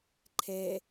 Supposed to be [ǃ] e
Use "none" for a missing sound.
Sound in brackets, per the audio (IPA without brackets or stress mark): ǃʰ